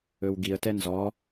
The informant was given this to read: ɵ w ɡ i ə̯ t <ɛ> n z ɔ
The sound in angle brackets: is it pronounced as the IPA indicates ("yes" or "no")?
yes